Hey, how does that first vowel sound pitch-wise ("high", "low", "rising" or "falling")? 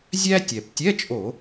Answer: high